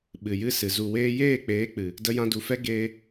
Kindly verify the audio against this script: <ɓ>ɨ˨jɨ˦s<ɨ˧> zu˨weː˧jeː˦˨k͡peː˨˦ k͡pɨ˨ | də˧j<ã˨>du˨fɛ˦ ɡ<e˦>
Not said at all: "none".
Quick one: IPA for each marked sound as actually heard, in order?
ɓ, ɨ˨, ã˧, eː˦

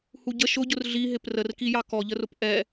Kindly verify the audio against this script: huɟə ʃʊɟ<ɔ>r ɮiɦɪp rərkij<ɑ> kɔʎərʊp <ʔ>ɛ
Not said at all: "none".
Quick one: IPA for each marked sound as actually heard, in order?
ʊ, ɑ, ʔ

